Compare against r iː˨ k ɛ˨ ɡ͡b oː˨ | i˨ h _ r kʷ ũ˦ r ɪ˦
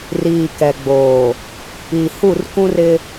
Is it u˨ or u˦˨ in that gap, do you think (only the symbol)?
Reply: u˦˨